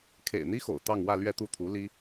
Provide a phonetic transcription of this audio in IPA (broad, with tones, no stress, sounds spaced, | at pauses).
kʰ ḛ˨˩ ɪ̯ n̪ i˥ x o̰˨˩ ʊ̯ t̪ ɑ˥˧ ŋ w ä˥˧ l ɥ ɛ˥˧ t̪ u˥˩ t̪ʰ u˧˥ l i˥